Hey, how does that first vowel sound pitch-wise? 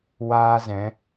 high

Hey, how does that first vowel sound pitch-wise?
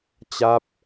falling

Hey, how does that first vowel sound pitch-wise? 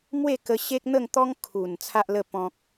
falling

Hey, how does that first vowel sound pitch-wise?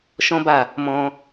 high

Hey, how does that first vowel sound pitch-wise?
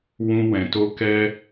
high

